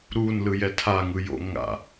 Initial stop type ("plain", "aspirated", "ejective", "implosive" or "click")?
aspirated